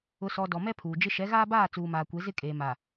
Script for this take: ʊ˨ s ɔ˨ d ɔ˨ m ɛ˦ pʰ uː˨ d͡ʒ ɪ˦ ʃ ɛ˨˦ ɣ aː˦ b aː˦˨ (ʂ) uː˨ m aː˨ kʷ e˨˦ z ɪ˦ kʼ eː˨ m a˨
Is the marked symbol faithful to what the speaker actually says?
no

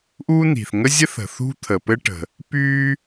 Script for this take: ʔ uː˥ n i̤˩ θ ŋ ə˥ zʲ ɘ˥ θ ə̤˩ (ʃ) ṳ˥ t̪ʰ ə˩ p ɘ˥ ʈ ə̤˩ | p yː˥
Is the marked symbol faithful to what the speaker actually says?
no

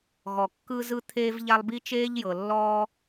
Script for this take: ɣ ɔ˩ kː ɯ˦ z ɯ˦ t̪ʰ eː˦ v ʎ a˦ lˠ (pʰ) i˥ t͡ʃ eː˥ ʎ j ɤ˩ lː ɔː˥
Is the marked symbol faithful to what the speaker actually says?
no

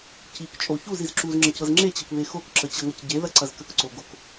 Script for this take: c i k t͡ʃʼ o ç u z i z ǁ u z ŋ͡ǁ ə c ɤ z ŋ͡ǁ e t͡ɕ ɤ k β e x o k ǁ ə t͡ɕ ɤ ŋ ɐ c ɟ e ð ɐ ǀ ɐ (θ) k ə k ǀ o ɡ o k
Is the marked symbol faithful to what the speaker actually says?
no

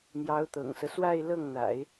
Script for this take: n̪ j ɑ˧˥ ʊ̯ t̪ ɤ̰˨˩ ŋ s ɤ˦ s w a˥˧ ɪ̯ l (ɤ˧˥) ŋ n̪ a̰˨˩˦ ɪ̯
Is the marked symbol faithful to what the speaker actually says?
no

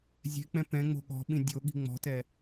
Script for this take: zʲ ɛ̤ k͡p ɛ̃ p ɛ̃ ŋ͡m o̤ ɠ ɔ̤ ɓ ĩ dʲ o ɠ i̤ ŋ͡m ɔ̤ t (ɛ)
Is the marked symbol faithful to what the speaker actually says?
yes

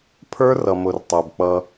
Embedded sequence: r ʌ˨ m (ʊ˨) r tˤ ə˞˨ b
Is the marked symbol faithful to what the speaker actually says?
yes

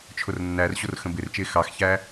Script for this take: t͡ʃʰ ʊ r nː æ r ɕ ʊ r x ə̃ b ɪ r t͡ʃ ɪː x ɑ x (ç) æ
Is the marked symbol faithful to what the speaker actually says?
yes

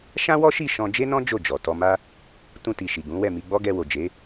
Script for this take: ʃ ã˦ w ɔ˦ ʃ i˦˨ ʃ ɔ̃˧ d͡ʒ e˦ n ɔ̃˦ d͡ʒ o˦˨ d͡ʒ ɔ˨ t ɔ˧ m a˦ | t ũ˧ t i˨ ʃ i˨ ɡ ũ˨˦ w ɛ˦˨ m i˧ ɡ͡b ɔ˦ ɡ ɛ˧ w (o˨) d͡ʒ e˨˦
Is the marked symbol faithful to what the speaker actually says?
yes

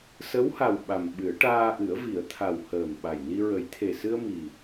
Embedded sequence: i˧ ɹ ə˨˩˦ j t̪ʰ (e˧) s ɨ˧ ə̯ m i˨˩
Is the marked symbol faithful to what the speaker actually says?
no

